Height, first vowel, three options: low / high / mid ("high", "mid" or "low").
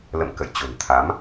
mid